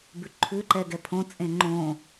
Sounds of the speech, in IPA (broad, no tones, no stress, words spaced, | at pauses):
bʉǃʰʉ ǃɛɡɛpʰõ t͡sʼẽŋ͡ǃõ